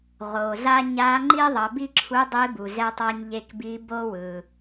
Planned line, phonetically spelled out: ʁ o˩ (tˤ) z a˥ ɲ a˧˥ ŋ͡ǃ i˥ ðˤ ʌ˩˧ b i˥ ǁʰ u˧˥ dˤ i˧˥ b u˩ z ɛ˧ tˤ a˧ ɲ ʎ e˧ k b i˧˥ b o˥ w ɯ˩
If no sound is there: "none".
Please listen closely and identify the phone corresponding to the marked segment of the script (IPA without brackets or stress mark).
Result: none